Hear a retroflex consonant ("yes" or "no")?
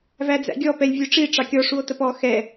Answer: yes